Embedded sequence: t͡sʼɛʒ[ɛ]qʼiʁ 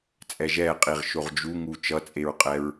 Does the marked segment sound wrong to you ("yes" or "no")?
no